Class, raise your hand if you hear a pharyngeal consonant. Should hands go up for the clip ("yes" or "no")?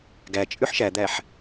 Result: yes